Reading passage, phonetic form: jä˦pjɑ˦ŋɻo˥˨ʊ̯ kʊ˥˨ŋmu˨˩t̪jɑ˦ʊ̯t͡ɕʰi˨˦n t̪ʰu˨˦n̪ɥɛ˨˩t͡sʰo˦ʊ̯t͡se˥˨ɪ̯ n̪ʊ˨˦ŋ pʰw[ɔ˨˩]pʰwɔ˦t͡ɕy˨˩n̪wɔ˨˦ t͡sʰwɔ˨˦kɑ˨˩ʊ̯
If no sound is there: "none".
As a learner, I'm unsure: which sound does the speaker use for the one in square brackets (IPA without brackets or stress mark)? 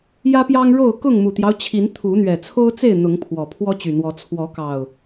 ɔ˨˩